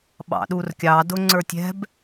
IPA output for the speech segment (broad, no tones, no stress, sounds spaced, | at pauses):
ɓ ɑ̰ ɗ u r kʲ ɑ d ʊ ŋ͡ǀ ə˞ tʲ ɛ̤ b